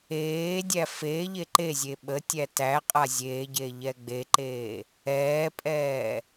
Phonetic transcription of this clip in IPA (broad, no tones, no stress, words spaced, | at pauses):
eːdʲæ feːʎe ǃe zʲeɓətʲæ tæ qʼazʲeːɟe ʎɛɡ͡beǃeː | ɛːpʼɛː